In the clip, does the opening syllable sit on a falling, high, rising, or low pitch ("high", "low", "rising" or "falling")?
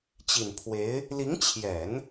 low